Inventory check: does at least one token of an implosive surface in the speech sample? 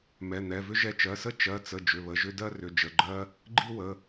no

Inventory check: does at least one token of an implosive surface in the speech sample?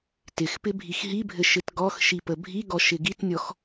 no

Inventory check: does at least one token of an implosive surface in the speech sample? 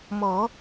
no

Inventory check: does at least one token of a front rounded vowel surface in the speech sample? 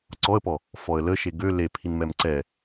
yes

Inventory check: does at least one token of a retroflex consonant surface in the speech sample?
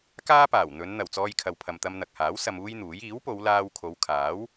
no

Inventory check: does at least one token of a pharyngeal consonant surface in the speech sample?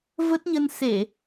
no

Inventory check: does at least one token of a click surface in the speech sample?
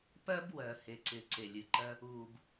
yes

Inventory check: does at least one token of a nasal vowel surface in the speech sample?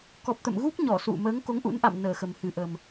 no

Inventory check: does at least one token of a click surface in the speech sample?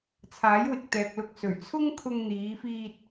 no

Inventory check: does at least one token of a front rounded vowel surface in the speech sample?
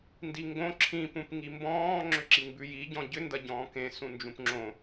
yes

